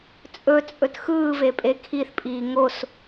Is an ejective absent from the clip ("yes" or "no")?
no